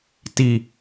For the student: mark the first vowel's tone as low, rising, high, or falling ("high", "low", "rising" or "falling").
high